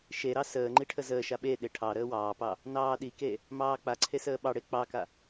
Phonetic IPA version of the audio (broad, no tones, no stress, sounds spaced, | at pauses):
ʃ e ɾ ɑ s əː ŋ͡ǃ i ʈʰ ə z əː ʃ a ɓ e ɗ e ʈʰ ɑ ɾ əː w ɑː p ɑ | n ɑː ɗ i k e | m ɑː k͡p a ǀʰ e s əː ɓ ɑ ɽ e k͡p ɑ k a